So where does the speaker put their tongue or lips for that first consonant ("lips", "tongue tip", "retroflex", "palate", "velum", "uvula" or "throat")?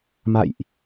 lips